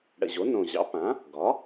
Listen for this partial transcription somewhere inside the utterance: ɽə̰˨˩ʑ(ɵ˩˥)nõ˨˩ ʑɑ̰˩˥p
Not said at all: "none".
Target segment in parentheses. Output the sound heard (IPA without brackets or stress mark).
o˩˥